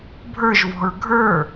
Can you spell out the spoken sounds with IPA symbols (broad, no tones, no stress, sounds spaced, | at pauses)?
bʱ ə˞ ʒ v ɔ̤ ɹ ɡʱ ə˞